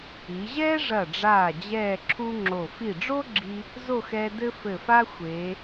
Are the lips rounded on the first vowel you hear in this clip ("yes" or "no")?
no